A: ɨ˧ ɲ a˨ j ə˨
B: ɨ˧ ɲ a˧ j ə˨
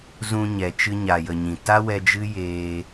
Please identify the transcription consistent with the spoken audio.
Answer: A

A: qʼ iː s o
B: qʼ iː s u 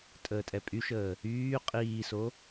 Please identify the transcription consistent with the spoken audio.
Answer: A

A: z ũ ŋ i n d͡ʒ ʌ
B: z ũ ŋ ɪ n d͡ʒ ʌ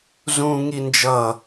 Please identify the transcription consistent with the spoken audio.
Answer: A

